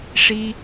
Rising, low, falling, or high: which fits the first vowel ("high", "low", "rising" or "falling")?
high